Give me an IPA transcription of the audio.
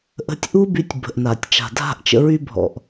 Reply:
ʔ ə̤˧ tʲ ʔ u˦ b y˧ tʲ b ə̤˨ ʔ n a˨ tʲ t͡ʃ a̤˨ dʱ a̤˦˨ ʔ t͡ʃ ə̰˧ ɹ y˧ bʱ ɔ̰˨ ʔ

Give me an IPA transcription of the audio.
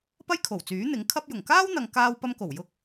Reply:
p ɐ˥ j kʰ o˨˩ w t͡s yː˨˥ n̪ ɪ˨˥ ŋ kʰ ɐ˥ p̚ j ʊ˨˩ ŋ k aː˥ w n̪ ɐ˨ ŋ k aː˧ w p ɐ˧ m k o˨˩ w j ʊ˧ k̚

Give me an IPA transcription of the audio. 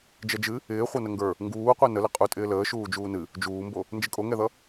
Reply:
d͡ʒ ɛ d͡ʒ ɨ | ɪː χʷ ʌ n ə ŋ ɡ ə˞ | ŋ ɡ uː qʷ i n ə l ɪ qʼ u tʼ ɪː l əː ʃ uː d͡ʒ uː n ɨ | d͡ʒ uː m b o | n d͡ʒ ɪ kʼ o ŋ ɛ ð ʌ

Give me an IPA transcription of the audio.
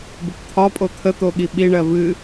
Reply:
b ə p t̪ʰ ɒ pʼ o t̪ʰ ə t̪ o ɠ i ɓ i ɳ ɜ v ɨ

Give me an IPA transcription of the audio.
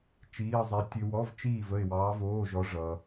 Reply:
t͡ʃ iː˧˥˧ ə̯ zˤ ɛ˧˥ tʲ ø˧ w ɔ˧˥˧ v t͡ʃ iː˥˨ v ə˥˨ ɪ̯ w ɑː˧˥ v oː˧˥˧ ʒ ɔ˧˥ ʐ ʌ˧

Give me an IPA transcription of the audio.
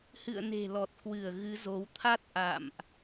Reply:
h ɨ̰˧˨ ə̯ n e̤˨˩ l ɔ˨˩ t̚ k w ɨ˧˩ ə̯ ɣ ɨ˨˦ z o˨˦ w t̪ʰ a˦˥ t̚ ʔ a̰˧˨ m ʔ

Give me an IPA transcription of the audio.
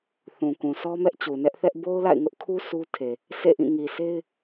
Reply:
θ ũ˨ k ũ˨ sʰ ɔ˦ m ɛ˦ ʔ t͡ɕ u˨ n ɛ˦ ʔ θ ɛ˦ ʔ b o˦ ʊ̯ l a̰˦˨ ɪ̯ ŋ ʊ˦ ʔ kʰ u˦ s u˦ tʰ e˨ | sʰ ḛ˦˨ ʔ ĩ˦˨ ŋ i˨ sʰ e˦ ɪ̯

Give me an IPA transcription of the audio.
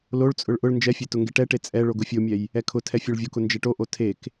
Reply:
l o ɭ t͡sʼ ʊ ɭ ʔ ʊ ɭ n d͡ʒ ɛ fʲ e t ʊ ŋ ɡ e ʈ ɛ ʈ e t͡sʼ ɛ ɭ o ɡ ʊ fʲ o mʲ ɛ j | ɛ kʰ ʊ tʰ ɛ fʲ o ɭ vʲ o k ʊ n d͡ʒ ɛ ʈ o ʔ o tʰ e k

